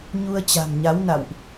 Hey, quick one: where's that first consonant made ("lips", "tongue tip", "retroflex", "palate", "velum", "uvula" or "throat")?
palate